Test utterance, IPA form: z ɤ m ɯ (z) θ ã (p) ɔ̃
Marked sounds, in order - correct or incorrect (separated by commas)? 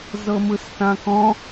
incorrect, incorrect